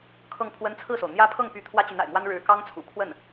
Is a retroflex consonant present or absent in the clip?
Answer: present